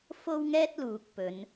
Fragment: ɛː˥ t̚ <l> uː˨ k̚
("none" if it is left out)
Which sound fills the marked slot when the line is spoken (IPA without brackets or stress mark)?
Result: l